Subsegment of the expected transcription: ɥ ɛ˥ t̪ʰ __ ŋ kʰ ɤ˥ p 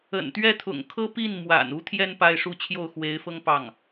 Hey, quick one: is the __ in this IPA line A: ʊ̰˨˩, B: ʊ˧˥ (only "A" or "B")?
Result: A